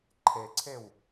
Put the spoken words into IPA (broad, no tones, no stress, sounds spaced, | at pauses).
ǃʰ e ǀʰ e w